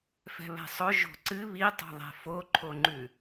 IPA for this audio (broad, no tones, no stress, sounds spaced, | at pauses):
f ɛ̤ β ɛ̤ sˤ ɵ ʒ o̤ ǀ ɨ β i tˤ o̤ ðˤ ɛ̤ f o ǃʰ o ŋ͡ǃ ʉ